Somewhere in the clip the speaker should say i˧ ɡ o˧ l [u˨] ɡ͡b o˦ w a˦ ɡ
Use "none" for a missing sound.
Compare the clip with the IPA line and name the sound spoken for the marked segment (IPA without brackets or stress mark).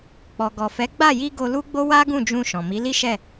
u˦